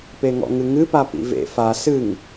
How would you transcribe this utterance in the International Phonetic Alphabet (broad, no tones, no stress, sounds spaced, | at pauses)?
p e ŋ ɔ̰ ŋ ɨ ŋ ɨ p a p ḭ v ḛ f a s ɨ ŋ